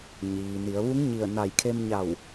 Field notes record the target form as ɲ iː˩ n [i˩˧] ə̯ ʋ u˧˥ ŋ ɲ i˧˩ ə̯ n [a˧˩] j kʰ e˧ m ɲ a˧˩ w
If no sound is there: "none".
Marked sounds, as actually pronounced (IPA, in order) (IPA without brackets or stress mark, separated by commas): i˩˧, a˧˩